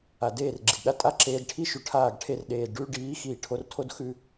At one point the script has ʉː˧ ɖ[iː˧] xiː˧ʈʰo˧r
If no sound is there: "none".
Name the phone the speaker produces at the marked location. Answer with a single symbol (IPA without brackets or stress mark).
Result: iː˨˦